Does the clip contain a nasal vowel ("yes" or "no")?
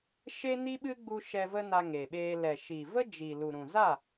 yes